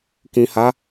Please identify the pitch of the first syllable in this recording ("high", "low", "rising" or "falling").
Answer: low